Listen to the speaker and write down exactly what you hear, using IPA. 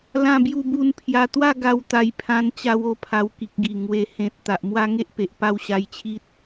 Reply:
l ã˥˧ b j u˥˧ b u˦ n pʰ j a˧ t̪ w a˥˧ ɡ a˧ w t̪ a˧ j pʰ ã˧ n t͡ɕ a˧ w o˥˧ pʰ a˧ w k i˨ k̚ ɡ i˨˩ ŋ w e˨˩ h ẽ˨ t̚ t̪ a˨ ʔ m w a˦ ŋ e˦ ʔ p e˨ ʔ p a˥˧ w ɕ a˧ j t͡ɕʰ i˦ t̚

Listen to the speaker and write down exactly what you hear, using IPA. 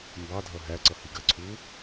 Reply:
m b ɑ dʱ ʌ ɦ æ ǀ ʌ h i ɡ ɜ ǀʰ u

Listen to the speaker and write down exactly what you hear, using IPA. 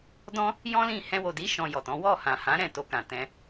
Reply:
d ɔ̃˦ | j ɔ̃˦ l ĩ˦˨ h ɛ̃˧ w o˨ d i˨˦ ʃ ɔ̃˧ j ɔ˨ t ɔ̃˨˦ w ɔ˦˨ h ã˨ h ã˨˦ ɾ ɛ̃˦˨ t o˧ k ã˨ t ɛ̃˧

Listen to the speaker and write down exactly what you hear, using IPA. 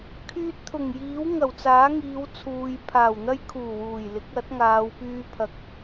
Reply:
kʰ yː˧ t̚ t̪ʰ ʊ˨˩ ŋ j iː˨˥ w ŋ ɐ˨˩ w t͡s aː˨˥ ŋ iː˨˧ w t͡sʰ uː˨ j pʰ aː˨˩ w n̪ ɐ˥ j kʰ uː˨˩ w uː˨˩ j l ɪ˨˥ k̚ ɐ˨˥ t̚ ŋ aː˨˧ w p yː˥ pʰ ɐ˧ k̚

